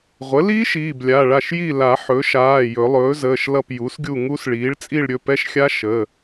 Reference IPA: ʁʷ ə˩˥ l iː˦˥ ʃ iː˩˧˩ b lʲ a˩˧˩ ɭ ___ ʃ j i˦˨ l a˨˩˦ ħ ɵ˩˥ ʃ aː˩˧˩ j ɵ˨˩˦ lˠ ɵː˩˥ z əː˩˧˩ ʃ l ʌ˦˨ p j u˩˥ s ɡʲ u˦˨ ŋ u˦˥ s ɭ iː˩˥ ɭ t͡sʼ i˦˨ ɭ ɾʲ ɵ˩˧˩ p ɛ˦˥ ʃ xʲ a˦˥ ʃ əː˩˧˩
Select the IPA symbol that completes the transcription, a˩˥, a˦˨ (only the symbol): a˦˨